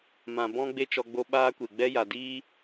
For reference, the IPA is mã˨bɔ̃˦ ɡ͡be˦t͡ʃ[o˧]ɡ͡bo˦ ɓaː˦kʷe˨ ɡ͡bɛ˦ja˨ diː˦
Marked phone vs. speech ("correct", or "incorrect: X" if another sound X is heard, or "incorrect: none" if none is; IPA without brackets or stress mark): incorrect: ɔ˧